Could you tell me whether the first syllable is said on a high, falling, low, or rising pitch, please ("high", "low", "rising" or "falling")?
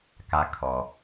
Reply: high